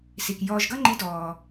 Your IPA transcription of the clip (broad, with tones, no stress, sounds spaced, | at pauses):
s i˩ k j ɔː˧ ʒ ɡ ʌ˥ ŋ͡ǃ i˧˥ d ɔː˩